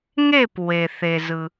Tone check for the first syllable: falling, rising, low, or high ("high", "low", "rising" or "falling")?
falling